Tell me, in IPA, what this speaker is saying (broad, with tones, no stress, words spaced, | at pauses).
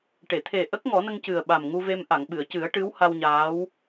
ʈe˨˩˨t̪ʰe˨˩ ʔə˦˥k̚ŋɔ˨˩˦nə˧ŋ cɨ˨˩ə̯ɓa˨˩mŋu˧ ve˧mʔa˨˩˨ŋ ɓɨ˨˩˨ə̯cɨ˨˩˦ə̯ ʈɨ˧˥wha˧wɲaː˧˥w